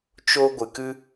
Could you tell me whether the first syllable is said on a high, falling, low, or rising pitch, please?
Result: high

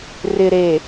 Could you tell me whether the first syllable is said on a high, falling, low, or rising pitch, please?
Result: low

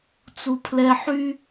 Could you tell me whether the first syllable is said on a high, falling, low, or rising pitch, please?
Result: high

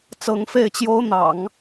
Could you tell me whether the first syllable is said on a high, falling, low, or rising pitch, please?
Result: rising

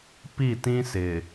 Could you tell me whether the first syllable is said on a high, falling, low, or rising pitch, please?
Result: falling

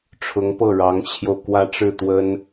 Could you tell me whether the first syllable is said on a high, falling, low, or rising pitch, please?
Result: rising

